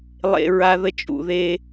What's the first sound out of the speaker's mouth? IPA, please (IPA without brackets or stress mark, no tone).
lˠ